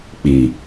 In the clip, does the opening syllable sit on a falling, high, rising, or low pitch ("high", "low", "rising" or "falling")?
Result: low